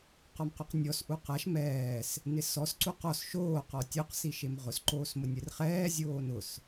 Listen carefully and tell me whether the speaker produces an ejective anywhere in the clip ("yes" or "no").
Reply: no